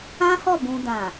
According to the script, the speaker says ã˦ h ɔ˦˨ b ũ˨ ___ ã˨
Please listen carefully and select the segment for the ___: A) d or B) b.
A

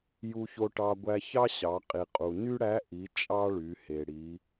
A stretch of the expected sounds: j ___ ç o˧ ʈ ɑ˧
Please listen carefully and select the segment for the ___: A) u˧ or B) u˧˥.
A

